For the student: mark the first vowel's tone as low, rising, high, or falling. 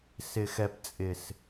low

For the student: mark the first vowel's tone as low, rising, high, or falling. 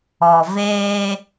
low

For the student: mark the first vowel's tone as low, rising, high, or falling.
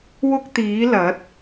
high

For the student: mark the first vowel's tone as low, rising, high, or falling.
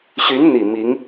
rising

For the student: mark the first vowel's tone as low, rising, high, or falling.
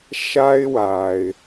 high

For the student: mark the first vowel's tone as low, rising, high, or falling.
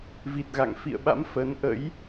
low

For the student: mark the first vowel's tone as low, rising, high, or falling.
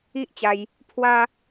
high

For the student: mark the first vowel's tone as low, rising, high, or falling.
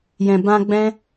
low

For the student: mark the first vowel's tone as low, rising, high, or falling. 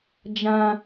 high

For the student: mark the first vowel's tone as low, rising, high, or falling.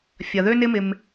low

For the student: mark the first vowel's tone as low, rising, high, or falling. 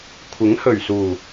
rising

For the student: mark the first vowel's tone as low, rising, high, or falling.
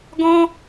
high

